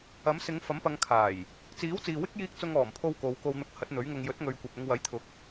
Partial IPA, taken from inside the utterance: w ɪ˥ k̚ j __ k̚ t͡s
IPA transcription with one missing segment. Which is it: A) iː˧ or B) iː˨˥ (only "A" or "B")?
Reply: A